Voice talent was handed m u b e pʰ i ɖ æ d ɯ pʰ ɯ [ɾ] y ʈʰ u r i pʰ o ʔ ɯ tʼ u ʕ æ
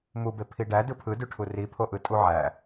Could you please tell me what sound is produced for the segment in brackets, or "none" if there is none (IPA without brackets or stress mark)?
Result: d